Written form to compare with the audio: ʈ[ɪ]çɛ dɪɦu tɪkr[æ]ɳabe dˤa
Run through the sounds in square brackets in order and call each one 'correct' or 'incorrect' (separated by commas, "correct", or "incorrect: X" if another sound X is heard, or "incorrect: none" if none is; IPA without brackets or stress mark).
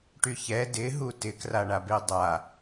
incorrect: y, incorrect: a